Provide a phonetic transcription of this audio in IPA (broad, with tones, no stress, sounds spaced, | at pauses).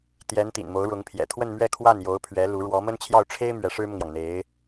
t̪ j ɛ˧˥ n t̪ ḭ˨˩ n m o˧˥ ʊ̯ ɻ ʊ˧˥ ŋ pʰ j ɛ̰˨˩ t̪ʰ w ə˥˧ n m ɥ ɛ˥˧ kʰ w a˥˩ n j o˧˥ ʊ̯ pʰ ɥ ɛ˧˥ l u˧˥ ɻ w ɔ˧˥ m ə˥ n t͡ɕʰ j ɑ˥˩ ʊ̯ ʈ͡ʂʰ e˥ ɪ̯ m ɥ ɛ˧˥ ʂ ɻ̩˥ m ʊ˨ ŋ j ɑ˩ ŋ n̪ e˧˥ ɪ̯